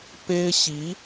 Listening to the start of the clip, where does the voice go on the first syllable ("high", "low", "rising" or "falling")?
high